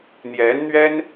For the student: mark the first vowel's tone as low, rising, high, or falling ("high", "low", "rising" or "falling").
rising